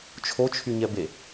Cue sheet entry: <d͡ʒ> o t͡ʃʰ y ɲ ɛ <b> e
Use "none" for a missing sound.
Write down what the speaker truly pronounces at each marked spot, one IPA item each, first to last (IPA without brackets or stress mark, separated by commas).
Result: t͡ʃʰ, b